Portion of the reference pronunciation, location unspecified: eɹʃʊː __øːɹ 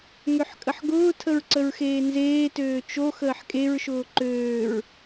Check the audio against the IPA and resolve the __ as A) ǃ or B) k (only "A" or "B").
A